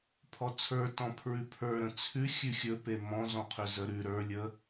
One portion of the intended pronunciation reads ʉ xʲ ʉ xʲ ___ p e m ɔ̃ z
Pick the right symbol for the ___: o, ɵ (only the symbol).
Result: ɵ